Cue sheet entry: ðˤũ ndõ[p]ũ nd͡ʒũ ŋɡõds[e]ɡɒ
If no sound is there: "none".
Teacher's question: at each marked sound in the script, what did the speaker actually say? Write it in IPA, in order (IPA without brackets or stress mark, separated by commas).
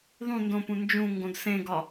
p, ẽ